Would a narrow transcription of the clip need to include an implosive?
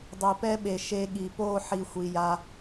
yes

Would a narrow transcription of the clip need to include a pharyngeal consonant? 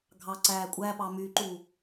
no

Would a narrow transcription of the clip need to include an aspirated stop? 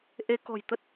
no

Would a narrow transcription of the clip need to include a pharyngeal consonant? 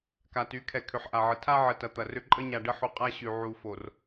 yes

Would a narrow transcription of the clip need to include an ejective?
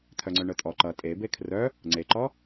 yes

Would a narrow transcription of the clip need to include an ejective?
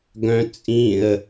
yes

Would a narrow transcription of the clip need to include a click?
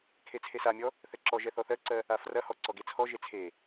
yes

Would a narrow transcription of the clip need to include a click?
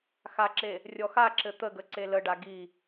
yes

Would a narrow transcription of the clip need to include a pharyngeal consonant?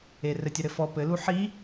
yes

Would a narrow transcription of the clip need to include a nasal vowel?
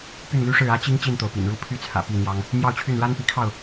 no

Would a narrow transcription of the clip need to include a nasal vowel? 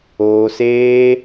no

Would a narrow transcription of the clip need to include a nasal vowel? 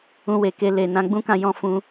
yes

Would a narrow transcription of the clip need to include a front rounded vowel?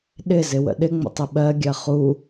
no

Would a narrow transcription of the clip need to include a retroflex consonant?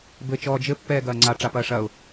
yes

